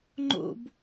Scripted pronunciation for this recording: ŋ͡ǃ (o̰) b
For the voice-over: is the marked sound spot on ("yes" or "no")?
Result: yes